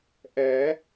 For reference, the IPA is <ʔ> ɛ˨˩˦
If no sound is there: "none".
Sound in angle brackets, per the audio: ʔ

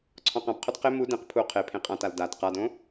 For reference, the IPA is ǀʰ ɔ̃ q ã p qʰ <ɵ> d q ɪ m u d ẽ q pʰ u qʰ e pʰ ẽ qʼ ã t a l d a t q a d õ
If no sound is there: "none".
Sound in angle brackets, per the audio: ɵ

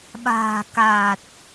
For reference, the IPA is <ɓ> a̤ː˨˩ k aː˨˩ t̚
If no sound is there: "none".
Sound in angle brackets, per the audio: ɓ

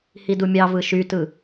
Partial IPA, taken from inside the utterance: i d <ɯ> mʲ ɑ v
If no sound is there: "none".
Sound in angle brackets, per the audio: u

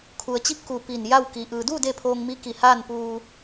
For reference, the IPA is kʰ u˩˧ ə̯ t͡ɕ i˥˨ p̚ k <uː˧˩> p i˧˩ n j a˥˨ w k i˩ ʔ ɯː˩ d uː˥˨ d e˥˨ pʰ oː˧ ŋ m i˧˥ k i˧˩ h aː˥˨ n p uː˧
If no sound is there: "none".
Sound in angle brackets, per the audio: uː˧˩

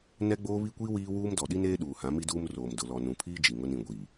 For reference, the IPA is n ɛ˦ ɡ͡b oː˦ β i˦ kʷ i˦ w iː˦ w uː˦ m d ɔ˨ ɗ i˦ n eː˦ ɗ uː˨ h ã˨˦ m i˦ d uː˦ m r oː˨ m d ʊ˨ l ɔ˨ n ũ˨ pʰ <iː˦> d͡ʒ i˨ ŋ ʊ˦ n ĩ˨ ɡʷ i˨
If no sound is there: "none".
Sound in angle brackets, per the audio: iː˦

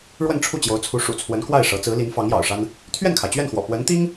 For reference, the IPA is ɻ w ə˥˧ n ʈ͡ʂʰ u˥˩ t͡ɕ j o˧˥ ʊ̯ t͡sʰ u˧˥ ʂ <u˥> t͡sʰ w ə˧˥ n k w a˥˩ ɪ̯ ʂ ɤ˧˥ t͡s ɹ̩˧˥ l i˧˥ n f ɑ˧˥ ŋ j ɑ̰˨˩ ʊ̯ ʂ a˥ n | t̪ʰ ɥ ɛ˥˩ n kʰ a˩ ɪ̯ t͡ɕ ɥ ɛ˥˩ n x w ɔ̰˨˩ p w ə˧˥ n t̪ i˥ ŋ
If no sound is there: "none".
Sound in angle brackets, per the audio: ṵ˨˩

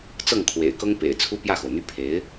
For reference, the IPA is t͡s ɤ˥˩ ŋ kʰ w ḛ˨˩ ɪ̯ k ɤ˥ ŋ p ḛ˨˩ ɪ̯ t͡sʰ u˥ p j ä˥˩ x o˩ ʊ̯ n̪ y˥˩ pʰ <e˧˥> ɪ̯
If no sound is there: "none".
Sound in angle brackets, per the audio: e˧˥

